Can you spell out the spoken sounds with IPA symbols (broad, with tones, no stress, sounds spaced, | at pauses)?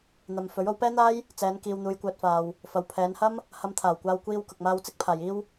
n̪ ɐ˨ m f ɵ˨˥ ɥ o˨˧ w p ɛː˥ n̪ aː˥ j | t͡s ɛː˨˧ n k iː˧ w n̪ uː˧ j kʷ œː˧ t̚ f aː˨ w | f ɐ˨ w pʰ ɛː˨˧ n h ɐ˥ m | h ɐ˧ m t̪ʰ aː˨˩ w kʷ aː˧ w kʷ iː˧ w k ʊ˨ k̚ m aː˧ w t͡s ɪ˥ k̚ pʰ aː˨ j iː˥ w